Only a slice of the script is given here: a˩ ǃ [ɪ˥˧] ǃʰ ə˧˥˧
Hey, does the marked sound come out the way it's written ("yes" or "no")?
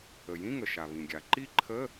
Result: no